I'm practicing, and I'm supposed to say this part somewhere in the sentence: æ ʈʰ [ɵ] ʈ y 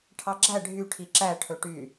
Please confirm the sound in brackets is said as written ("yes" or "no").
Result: yes